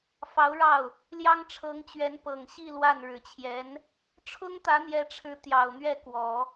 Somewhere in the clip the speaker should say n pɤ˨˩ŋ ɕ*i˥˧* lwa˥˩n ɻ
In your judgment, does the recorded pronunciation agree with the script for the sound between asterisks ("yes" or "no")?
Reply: yes